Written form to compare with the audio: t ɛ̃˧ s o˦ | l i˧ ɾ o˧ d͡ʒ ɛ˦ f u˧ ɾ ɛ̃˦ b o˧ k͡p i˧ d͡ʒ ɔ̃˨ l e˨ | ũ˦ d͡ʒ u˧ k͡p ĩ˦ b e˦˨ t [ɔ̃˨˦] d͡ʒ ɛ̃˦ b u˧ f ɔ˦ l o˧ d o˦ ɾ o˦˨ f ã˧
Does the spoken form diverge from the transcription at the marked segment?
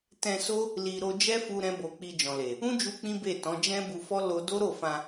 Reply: no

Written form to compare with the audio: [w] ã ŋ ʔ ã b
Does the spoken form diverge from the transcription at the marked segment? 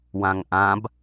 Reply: no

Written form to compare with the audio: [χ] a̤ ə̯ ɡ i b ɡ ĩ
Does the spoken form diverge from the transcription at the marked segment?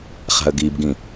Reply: no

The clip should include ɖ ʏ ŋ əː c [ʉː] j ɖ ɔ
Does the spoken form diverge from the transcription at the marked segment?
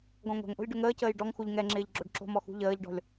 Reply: yes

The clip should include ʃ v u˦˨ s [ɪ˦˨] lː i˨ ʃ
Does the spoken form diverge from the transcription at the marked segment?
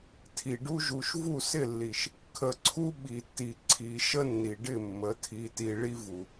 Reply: no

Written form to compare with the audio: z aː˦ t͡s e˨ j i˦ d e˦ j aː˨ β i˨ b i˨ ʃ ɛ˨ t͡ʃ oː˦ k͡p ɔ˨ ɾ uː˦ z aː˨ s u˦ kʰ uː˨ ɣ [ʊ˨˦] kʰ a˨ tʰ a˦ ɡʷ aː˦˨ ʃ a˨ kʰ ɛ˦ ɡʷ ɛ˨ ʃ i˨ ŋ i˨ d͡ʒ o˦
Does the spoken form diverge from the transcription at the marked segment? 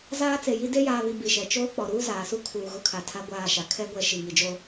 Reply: yes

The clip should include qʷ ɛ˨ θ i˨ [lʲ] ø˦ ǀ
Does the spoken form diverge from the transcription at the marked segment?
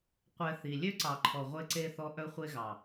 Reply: no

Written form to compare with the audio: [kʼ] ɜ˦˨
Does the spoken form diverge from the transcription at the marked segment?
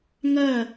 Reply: yes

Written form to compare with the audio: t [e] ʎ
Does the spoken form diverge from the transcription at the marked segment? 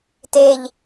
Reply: no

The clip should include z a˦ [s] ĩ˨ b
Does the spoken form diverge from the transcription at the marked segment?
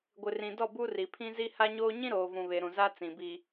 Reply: yes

